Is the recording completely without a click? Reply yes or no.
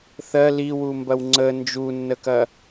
no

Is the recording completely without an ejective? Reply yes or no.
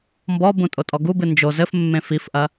no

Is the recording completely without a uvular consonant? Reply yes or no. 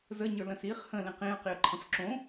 no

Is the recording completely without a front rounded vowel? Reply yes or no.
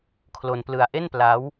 yes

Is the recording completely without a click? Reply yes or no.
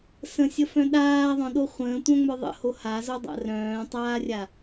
yes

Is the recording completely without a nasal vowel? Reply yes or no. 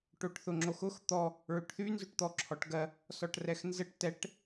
yes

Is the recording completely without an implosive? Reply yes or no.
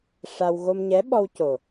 no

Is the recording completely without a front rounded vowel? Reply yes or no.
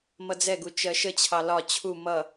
yes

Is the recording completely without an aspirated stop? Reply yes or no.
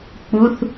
yes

